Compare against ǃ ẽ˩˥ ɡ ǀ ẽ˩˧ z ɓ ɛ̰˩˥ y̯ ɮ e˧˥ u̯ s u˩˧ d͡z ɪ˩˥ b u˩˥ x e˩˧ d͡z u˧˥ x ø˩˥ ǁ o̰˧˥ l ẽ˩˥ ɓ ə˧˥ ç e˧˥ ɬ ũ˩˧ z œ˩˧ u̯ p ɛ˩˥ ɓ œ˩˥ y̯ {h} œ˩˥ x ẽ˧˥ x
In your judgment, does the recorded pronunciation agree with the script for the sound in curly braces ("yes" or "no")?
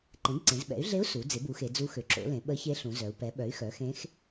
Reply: no